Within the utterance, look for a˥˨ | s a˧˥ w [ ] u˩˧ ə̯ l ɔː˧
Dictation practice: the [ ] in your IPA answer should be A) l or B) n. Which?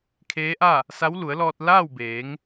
A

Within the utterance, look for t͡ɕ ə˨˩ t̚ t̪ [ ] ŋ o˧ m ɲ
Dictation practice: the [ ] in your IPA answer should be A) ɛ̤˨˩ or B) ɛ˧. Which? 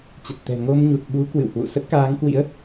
A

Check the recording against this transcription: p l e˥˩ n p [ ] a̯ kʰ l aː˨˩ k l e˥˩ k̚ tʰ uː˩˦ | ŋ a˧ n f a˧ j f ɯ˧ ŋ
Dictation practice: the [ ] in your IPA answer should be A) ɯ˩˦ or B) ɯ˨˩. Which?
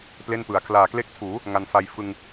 A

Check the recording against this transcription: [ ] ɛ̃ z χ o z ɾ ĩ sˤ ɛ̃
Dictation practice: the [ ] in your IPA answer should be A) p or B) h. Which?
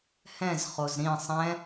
B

